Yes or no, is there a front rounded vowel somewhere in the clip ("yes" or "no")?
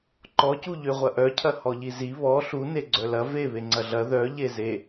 yes